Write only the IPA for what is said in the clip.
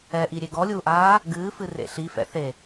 ɛ ʔ i ɾʲ e ɡ ɔ lʲ uː ʔ aː | ɡ ɨː f ɨ r ḛ ɬ i f ɛ̰ θ e

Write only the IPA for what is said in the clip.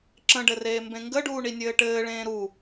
ǁ ə̃ ɖ ɘ r eː m b ẽ ŋ ɡ ə ɖ uː ɳ i nʲ ɘː ʈ ɘː ɭ ẽː ɾ u

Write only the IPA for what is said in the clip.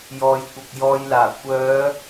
j ɔː˨ j kʷ ɐ˨ k̚ j ɔː˧ j l aː˨˩ kʷ œː˨˧

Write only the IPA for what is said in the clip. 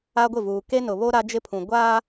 a˦ ɡʷ ɪ˦˨ v uː˨ k e˦ n ʊ˨ β o˦ ɾ a˦ d͡ʒ ɪ˦ pʰ ũ˨ ɡʷ aː˦

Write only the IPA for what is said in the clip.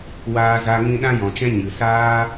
w aː˧ z a˧ ŋ ĩ˧ ɗ ã˧ j ɔ̃˨ t͡ʃ ɛ̃˧ ɲ ɨ˨ s aː˦

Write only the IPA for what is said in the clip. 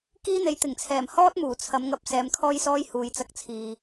k iː˥ n̪ e˨˧ j t̪ ɪ˨˩ ŋ t͡sʰ ɛː˨˩ m h ɔː˥ t̚ m uː˨˩ t͡sʰ ɐ˨˧ m ŋ ɐ˧ p̚ s ɛː˨˧ m kʰ ɔː˥ j s ɔː˥ j h uː˨ j t͡s ɐ˧ k̚ t͡sʰ iː˨

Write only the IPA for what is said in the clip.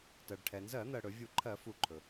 t ɜ˩ ɖ ʈʰ ɛ˩ n z ɜ˧˩˧ n̪ ɜ˩ ɽ ɵ˧˩˧ vʲ u˧˩˧ ǃʰ ɜ˧˩˧ f u˧˩ ǃʰ ɵ˩

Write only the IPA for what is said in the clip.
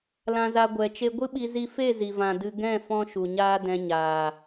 l ã˧ z a˧ ɡʷ ɛ˨ t͡ʃ e˧ ɡʷ ɨ˦ ɓ i˧ z i˦ f e˦˨ z i˨ v ã˨ d ɨ˧ ɡ ɛ̃˦˨ f ɔ̃˦ ʃ u˨ ɲ aː˦ d ɛ̃˧ ɲ aː˨

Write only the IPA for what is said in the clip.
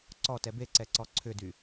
ǀ ɔ t ɛ b e ǀ ɛ ǀ ɔ ǀʰ ʏ d y

